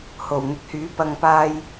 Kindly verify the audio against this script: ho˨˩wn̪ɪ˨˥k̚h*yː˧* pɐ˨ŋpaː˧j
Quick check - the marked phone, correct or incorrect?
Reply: incorrect